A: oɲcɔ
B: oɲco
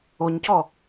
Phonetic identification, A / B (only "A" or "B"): A